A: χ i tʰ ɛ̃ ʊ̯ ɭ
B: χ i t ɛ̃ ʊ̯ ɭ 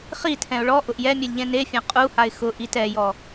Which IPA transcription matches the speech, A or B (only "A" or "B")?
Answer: A